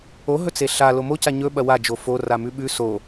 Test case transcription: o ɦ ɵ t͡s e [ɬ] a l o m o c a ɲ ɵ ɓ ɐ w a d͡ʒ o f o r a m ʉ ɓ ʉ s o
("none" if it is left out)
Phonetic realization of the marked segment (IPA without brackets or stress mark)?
ɬ